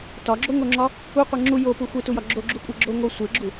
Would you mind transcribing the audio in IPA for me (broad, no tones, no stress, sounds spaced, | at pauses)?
t ɒ ɡ͡ǁ o ŋ o ŋ͡ǁ ɒ | u qʷ e ŋ͡ǁ u j o p u xʷ e t u j ɒ ɡ͡ǁ o ɡ͡ǁ u kʷʼ e ɡ͡ǁ o ŋ o sʷ e ɡ͡ǁ u